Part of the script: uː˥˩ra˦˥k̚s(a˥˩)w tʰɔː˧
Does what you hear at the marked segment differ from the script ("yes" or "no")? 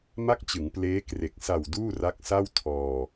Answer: no